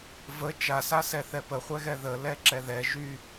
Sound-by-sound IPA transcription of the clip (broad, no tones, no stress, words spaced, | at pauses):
və t͡ʃasasɛ θɛpəχʷɛɣɛ ðə lɛǁɛðɛ ʒy